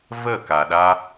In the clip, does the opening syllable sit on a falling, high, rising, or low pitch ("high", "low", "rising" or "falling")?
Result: falling